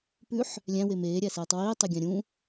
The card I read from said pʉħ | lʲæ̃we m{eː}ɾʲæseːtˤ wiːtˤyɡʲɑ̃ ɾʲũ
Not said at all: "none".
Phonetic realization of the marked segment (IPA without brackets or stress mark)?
eː